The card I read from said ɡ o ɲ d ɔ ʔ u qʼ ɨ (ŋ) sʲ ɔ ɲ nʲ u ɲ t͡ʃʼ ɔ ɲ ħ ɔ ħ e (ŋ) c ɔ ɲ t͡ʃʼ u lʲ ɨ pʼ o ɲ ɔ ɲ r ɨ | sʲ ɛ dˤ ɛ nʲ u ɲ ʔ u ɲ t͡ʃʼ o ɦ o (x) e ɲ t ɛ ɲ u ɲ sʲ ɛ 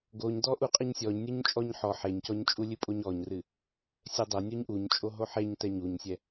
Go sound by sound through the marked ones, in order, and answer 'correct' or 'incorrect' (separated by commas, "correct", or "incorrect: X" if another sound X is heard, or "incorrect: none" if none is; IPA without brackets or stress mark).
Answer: incorrect: ɲ, incorrect: ɲ, incorrect: ħ